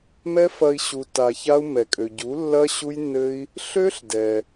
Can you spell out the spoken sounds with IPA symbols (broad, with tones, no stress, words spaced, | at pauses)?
mɛ˦fɐ˧i̯ ɕu˧tːa˧ça˦u̯ mɛ˨kʼø˨ɟu˨˦lːɐ˦ ɕu˦jnːɘ˦i̯ | ɬø˦ɬ dɛ˧